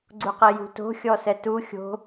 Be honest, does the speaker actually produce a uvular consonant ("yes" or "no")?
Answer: yes